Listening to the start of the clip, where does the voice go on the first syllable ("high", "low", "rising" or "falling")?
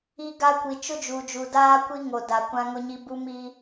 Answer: high